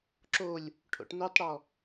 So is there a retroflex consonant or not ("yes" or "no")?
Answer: yes